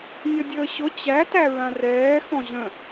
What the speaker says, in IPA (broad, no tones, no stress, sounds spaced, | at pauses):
nʲ ʌ dʲ əː ɕ ʊ t͡ɕ æ t æ ɹ ã r ɛː x ɔ̃ ʑ ə̃